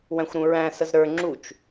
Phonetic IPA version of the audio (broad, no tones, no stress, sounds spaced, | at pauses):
w æ̃ xʷ ɾ ũ ɹ æ̃ s ə z ɾ ə˞ ŋ͡ǁ u t͡ʃ